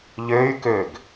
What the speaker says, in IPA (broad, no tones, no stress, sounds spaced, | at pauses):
ʎ ø y̯ k ø ɡ